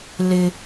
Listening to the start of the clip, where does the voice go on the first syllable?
high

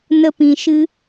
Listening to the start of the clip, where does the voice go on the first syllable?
high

